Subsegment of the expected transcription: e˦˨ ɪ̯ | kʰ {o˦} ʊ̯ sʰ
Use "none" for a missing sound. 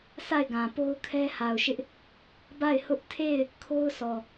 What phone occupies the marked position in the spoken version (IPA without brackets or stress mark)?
o˦